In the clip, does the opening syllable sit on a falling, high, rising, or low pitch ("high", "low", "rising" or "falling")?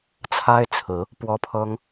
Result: high